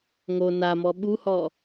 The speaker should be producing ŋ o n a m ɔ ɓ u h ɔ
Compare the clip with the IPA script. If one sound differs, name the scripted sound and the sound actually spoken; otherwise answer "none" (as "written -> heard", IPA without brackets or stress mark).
none